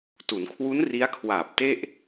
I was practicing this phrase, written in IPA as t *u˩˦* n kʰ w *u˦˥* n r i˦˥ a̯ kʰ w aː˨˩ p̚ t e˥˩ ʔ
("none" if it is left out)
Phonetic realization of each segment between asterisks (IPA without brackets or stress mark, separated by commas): u˩˦, u˦˥